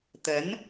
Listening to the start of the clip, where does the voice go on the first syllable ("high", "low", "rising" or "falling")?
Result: rising